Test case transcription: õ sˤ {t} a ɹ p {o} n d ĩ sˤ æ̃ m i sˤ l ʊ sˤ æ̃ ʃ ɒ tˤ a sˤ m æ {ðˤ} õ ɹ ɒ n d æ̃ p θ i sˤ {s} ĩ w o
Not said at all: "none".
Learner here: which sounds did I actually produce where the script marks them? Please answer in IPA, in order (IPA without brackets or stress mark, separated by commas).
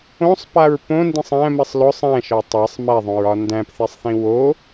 p, õ, ðˤ, θ